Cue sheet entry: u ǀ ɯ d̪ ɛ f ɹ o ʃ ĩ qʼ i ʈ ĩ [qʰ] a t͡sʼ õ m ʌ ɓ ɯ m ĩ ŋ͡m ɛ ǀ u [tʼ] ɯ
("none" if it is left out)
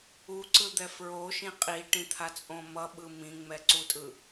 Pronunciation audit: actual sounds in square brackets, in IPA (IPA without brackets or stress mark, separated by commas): t̪ʰ, tʼ